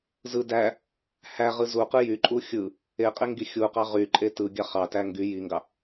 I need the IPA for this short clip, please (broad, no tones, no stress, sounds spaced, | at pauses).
z ɯ d æ | h æ ʁ ɯ z u q ɯ j y ǃʼ u xʲ ɯ | e qʼ e ŋ ɡ i xʲ u q ɑ ʁ y ǃʼ e t ɯ ɡʲ ɑ χ ɑ t æ ŋ ɡ y j i ŋ ɡ ɑ